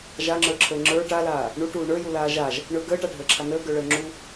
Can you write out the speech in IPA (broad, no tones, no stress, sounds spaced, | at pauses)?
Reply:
ʒ a ŋ͡ǁ ə˞ ǁʰ əː ŋ͡ǁ ə˞ ʈ a l aː | ɳ u ʈ uː ɳ ə˞ j u l aː ʒ a ʒ | ɳ ɵ ɡ əː ʈ a ɖʱ əː ǁʰ a n əː ɡ ə˞ ɭ əː ŋ͡ǁ u